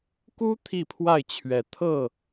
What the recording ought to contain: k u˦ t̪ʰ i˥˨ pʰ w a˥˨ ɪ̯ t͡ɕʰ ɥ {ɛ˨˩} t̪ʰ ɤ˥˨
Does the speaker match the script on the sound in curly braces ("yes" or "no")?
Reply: no